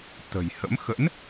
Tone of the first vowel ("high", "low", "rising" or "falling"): low